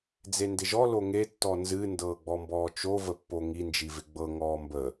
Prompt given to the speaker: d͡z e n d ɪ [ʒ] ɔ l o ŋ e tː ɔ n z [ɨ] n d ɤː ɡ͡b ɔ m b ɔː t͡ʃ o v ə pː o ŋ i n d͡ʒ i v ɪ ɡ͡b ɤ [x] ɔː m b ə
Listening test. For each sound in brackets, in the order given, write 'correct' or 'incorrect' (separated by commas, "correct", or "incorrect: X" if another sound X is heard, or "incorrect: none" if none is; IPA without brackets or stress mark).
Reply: correct, correct, incorrect: ŋ